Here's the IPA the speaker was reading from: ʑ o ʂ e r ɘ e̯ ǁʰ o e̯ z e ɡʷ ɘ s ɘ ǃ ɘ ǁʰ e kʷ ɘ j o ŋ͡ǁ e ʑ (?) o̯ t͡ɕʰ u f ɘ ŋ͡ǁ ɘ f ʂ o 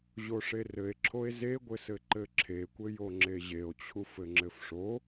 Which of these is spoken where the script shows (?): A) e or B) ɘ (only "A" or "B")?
A